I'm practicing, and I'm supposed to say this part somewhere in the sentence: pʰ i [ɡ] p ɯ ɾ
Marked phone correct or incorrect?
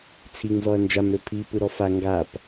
incorrect